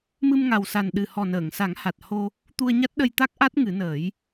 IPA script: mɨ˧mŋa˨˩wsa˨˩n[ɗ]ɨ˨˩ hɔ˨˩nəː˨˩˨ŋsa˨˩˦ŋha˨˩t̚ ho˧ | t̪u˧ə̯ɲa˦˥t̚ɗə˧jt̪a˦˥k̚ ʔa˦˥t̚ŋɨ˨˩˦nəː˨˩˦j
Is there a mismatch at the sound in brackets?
no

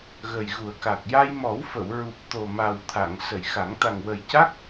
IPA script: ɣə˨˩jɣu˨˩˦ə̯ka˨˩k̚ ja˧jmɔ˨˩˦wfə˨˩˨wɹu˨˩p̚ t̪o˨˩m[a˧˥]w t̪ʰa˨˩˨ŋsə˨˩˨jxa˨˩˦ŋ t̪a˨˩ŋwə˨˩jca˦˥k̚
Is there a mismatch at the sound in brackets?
yes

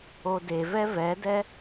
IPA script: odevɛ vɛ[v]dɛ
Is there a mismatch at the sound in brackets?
yes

